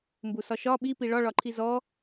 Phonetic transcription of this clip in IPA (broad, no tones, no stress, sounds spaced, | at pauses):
m b u s ɒ ʃ ɒ ɓ i p i ɭ ɒ ɭ ɒ ǃʰ i z ɔ